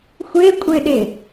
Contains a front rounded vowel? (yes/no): no